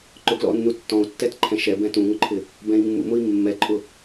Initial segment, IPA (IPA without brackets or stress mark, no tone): ǃ